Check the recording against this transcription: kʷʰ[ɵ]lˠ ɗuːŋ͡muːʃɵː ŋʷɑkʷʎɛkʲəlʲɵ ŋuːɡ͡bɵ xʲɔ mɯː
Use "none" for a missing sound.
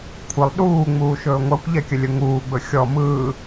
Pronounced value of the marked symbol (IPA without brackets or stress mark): ə